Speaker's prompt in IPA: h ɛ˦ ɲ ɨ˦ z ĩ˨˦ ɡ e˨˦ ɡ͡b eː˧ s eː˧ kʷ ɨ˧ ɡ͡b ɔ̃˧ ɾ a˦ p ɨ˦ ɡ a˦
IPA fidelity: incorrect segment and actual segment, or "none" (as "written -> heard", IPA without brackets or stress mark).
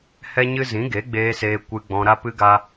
none